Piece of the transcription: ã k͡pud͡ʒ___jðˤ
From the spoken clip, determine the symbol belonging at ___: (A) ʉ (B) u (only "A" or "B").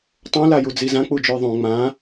A